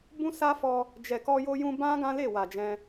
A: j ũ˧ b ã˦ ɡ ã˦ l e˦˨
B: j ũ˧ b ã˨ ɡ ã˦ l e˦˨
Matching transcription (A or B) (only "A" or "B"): A